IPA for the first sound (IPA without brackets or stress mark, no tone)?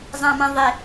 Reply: zˤ